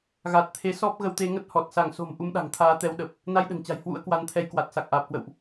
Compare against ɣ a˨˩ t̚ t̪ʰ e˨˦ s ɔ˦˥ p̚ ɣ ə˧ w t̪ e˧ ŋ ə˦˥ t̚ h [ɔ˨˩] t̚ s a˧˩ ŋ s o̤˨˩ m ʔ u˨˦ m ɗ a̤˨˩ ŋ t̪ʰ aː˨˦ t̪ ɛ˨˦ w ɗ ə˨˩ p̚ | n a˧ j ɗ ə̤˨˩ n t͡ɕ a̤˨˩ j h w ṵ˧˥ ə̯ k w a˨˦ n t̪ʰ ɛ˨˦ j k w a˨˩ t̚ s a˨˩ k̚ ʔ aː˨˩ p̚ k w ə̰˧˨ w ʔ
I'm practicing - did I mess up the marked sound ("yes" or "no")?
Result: no